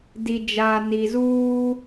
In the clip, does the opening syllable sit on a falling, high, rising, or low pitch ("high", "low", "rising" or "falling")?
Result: low